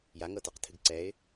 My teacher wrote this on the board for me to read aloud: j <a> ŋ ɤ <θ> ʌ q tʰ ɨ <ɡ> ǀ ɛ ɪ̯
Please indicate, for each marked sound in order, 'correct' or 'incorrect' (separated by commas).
correct, incorrect, correct